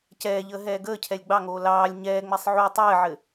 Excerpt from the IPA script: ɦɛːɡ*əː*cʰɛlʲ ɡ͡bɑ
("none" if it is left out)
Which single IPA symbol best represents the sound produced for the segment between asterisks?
əː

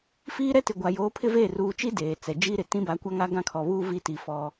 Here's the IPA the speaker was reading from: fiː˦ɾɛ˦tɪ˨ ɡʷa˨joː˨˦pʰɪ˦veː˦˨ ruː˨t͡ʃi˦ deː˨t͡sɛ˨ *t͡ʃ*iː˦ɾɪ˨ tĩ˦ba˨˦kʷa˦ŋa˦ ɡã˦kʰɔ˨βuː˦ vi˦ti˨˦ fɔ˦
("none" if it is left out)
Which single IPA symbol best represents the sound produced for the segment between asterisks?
d͡ʒ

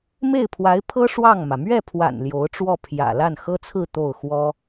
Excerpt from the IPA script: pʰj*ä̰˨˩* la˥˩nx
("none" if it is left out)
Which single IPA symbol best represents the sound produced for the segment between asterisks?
ä̰˨˩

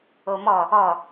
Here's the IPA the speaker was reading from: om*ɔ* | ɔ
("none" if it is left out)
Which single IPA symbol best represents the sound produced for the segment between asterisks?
ɔ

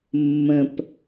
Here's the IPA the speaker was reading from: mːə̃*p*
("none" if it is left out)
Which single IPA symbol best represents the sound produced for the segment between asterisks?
p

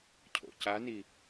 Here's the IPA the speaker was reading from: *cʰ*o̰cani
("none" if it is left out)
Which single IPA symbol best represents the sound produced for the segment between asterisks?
cʰ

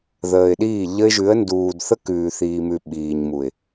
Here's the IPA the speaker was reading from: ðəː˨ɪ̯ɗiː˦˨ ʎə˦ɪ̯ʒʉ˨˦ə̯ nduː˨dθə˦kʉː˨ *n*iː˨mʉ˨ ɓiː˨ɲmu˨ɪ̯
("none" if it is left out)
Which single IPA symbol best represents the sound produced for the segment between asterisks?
θ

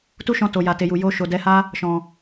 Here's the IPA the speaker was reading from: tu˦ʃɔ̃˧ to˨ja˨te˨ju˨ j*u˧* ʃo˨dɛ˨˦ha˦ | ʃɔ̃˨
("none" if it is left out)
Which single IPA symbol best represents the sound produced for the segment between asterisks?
o˧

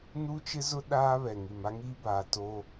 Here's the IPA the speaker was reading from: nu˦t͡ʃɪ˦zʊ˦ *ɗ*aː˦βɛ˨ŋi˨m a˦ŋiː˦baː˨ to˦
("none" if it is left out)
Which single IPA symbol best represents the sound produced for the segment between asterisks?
ɗ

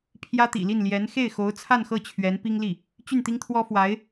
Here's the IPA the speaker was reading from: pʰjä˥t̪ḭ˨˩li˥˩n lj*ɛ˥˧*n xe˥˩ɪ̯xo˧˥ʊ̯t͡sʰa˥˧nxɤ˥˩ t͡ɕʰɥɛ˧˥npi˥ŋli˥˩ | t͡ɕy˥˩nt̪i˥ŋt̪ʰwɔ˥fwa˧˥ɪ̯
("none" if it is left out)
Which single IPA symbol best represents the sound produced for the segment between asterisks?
ɛ˧˥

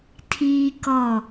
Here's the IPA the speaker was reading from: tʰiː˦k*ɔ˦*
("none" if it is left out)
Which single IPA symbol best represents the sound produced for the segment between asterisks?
ɔ˦˨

